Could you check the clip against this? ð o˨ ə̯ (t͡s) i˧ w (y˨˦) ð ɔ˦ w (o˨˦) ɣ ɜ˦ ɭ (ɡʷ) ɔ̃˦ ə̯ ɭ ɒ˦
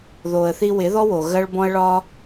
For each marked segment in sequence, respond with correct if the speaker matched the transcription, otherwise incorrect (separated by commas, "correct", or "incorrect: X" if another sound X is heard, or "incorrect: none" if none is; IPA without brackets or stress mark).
incorrect: θ, incorrect: ɪ˨˦, incorrect: o˨, incorrect: b